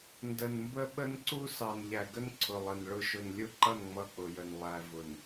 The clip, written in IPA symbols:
n d ə˨ n m b ə˦ ɓ ə˦ n ǀ u˦ s ɑ˨ n ʎ æ˨ ɡ ə˦ n ǀʰ ʊ˨ lˠ ə˨ n ɭ ʊ˦ ʃ ʊ˨ n lʲ ʊ˦ ǃ ʌ˦˨ n ŋ͡m ʌ˦˨ k͡p ʊ˨ j ə˨ n lˠ æ˨ v ʊ˨ n

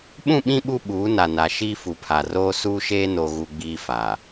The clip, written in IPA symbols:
ɓ ũ˦˨ ɓ ĩ˦ ɓ u˦ ɓ uː˨˦ n a˨ n a˨ ʃ iː˦ f u˨ pʰ a˨ r oː˦ s uː˦ ʃ eː˦ n o˦ ɣ u˦ ɡ͡b iː˦ f a˨

